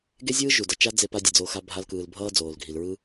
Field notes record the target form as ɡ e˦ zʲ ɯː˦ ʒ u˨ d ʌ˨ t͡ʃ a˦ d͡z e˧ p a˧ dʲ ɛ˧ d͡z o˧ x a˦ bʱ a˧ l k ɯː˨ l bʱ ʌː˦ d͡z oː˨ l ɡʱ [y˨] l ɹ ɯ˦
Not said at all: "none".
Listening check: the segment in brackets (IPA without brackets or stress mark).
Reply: i˨